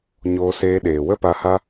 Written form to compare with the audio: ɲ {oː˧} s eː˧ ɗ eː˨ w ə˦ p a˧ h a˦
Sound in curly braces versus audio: correct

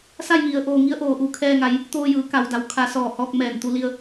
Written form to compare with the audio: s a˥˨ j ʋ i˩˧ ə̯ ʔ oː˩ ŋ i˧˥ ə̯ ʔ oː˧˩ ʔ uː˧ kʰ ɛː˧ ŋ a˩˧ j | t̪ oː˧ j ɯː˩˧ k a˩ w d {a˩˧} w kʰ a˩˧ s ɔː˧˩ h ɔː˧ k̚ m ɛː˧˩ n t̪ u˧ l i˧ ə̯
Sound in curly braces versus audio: correct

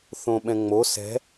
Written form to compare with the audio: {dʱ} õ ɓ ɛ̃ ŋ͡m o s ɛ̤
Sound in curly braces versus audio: incorrect: θ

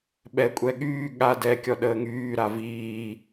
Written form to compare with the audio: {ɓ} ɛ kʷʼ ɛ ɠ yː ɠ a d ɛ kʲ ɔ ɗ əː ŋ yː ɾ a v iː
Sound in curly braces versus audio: correct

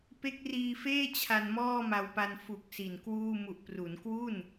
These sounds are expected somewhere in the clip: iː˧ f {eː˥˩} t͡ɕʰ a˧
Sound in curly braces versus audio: correct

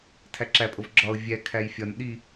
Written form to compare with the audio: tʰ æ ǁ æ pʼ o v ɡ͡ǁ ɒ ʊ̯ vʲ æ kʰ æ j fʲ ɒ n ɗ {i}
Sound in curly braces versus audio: correct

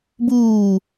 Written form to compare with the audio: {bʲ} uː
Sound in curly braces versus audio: incorrect: b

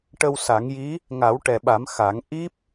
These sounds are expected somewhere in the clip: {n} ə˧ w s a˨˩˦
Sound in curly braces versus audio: incorrect: ʈ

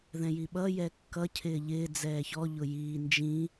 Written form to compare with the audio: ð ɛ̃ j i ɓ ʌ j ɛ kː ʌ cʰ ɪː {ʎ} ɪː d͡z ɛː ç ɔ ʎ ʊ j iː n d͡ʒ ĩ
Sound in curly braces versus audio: correct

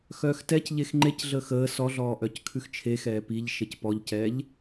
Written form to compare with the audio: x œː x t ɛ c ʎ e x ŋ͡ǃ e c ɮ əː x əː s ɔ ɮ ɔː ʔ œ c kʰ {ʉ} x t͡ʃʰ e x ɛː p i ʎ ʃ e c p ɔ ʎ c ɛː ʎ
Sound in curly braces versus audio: correct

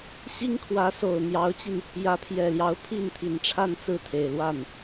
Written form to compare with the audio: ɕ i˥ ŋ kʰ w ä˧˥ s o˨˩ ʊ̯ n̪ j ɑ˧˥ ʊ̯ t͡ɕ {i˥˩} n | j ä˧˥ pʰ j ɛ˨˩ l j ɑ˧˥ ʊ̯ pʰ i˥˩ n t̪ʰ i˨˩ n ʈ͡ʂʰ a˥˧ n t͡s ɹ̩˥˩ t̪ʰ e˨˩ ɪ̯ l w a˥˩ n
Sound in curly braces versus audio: incorrect: i˧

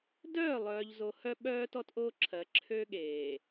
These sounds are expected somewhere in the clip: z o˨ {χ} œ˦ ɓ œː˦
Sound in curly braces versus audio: incorrect: h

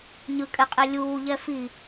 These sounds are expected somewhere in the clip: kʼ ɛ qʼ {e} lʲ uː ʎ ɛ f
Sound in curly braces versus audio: incorrect: ɛ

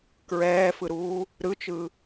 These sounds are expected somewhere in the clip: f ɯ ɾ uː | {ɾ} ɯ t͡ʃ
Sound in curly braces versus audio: correct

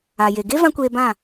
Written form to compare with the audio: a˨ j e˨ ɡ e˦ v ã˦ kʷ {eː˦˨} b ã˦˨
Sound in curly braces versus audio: incorrect: eː˧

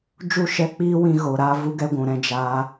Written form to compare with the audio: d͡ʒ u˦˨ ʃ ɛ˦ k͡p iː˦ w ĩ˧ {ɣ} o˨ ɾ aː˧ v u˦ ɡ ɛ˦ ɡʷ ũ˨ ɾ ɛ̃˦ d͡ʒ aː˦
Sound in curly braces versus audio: correct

